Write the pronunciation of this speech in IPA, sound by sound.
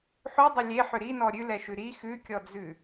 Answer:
ħ ʉ dˤ ʏ lʲ e ħ ʏ ɾ i n ɔ ɾʲ ʉ l ɛ ʃ ʉ ɾ i x ʉ kʲ ɔ d͡z ʉ

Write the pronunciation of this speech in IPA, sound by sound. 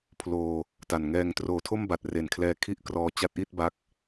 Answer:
pʰ l oː˧ | t a˨˩ n ŋ ɛː˧ ŋ t r oː˨˩ tʰ o˥˩ m b a˨˩ t̚ r e˨˩ n kʰ l ɛː˧ kʰ i˥˩ ʔ k r ɔː˧ t͡ɕ a˦˥ t̚ ʔ i˥˩ t̚ b a˦˥ k̚

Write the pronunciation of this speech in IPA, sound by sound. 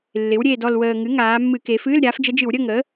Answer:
lː ɪ˩˧ w ɾʲ eː˨˩ d ɔ˨˩ l w əː˨˩ ŋ ɨ˩˥ ŋ aː˩˧ mː ɨ˧˩˧ k e˩˧ f ɨː˧˥˧ l ɾʲ aː˩˥ f d͡ʒ ə˧˥ d͡ʒ ɨ˧˩˧ w ɾʲ ə˧˥˧ ŋ əː˩˥

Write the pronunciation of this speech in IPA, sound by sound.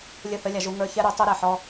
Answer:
lʲ ə˦˨ θ ə˦ lʲ a˧ ʒ u˧ ŋ ə˞˧ ç ɛ˦ ɾ u˨˦ tˤ o˦ ɾ ɛ˨ ħ ɔ˧

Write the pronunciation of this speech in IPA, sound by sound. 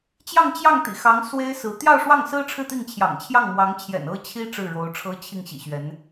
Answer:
t͡ɕ j ɑ˥˧ ŋ t͡ɕ j ɑ˥˩ ŋ t̪ ḭ˨˩ x ɑ˧˥ ŋ s w e˥ ɪ̯ s ɹ̩˧˥ t̪ j ɑ˥˧ ʊ̯ ʂ w ɑ˥˩ ŋ s ɹ̩˥ ʈ͡ʂʰ ɻ̩˥˧ t̪ i˥˩ ŋ t͡ɕʰ j ɑ̰˨˩ ŋ t͡ɕʰ j ɑ˥˩ ŋ m w ɑ˧˥ ŋ t͡ɕʰ j ɛ̰˨˩ n ɤ˥ t͡ɕʰ i˥ ʈ͡ʂ ɻ̩˥˩ ɻ o˧˥ ʊ̯ ʈ͡ʂʰ ɤ˥ t͡ɕʰ i˥˩ ŋ ɕ ḭ˨˩ ɕ ɥ ɛ˧˥ n

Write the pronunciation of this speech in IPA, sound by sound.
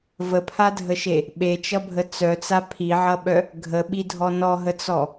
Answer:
v ə pʰ a dʱ ə ʃ e | ɓ e t͡ʃ ʌ bʱ ə t͡s œ t͡s a pʰ i ʕ ʌ ɓ œ | ɡʱ ə ɓ i dʱ ɔ n ɔ ɦ ə t͡s ɔ

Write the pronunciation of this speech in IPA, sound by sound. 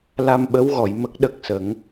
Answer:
l a˧ m ɓ ə˧˥ w ɣ ɔ˨˩˨ j m ə˦˥ k̚ ɗ ə˦˥ k̚ s ə˨˩˦ ŋ

